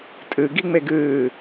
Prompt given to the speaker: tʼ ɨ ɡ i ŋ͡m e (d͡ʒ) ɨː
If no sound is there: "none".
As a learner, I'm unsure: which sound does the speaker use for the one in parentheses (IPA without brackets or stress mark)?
ɡ